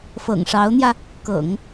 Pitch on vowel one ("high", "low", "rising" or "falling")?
low